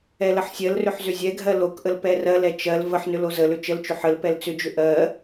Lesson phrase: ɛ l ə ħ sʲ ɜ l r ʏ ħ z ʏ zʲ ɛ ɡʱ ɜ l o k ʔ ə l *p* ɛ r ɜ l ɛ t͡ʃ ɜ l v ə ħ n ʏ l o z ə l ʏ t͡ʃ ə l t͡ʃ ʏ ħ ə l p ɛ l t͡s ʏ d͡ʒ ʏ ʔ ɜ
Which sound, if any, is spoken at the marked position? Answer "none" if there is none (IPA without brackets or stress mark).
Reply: p